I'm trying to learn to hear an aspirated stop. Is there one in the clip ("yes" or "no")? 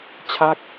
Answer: yes